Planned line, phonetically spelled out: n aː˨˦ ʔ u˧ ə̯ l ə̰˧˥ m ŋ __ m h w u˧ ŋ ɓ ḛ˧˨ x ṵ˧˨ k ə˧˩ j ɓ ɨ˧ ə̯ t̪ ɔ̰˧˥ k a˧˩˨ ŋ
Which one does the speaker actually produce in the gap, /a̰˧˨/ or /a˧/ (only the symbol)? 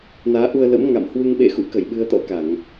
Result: a̰˧˨